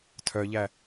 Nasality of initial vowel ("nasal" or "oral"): oral